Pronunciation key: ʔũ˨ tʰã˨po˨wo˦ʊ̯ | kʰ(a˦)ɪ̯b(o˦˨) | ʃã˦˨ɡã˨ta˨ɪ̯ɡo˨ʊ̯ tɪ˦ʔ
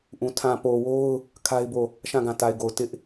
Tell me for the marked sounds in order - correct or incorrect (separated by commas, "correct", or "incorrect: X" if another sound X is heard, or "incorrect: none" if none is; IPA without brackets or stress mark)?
correct, correct